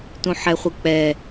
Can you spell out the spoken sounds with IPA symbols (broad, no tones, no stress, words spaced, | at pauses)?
tũħɛχʷɯk͡pɛ